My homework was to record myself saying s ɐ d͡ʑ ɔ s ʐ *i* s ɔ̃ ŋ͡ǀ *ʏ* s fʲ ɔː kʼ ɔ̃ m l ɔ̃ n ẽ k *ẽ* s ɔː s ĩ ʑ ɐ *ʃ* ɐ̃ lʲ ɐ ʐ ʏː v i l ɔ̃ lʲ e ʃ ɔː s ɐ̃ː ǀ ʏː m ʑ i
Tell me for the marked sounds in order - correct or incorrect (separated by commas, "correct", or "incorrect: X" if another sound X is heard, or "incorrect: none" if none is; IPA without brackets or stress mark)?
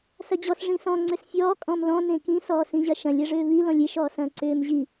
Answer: incorrect: ĩ, correct, incorrect: ĩ, correct